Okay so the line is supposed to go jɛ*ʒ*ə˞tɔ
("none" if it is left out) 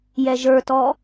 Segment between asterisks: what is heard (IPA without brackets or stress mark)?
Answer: ʒ